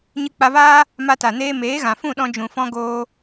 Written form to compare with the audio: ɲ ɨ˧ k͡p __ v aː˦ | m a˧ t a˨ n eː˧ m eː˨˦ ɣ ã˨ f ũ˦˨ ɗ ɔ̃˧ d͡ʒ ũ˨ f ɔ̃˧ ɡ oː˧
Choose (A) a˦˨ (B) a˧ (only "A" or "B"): B